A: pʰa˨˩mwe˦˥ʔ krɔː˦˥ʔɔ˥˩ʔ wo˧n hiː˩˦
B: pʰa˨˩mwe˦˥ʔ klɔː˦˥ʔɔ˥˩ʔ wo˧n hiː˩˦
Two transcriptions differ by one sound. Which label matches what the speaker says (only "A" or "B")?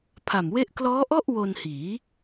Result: B